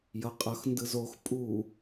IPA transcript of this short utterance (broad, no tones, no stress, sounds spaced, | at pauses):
j ʌ qʼ ʌ x n d ɯ z o x pʼ u